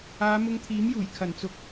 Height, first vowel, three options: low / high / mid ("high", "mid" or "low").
low